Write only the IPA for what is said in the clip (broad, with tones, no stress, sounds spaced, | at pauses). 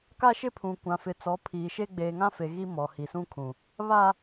k a˦ ʃ ɪ˦ pʰ ũ˨ kʷ ã˨ f ɪ˨ t͡s ɔ˨˦ pʰ iː˨ ʃ e˦ ɡ͡b eː˨ ŋ ã˦ f e˨ ɣ i˦ m ɔ˨ h i˨ s ũ˦ kʰ ũ˨ | β a˦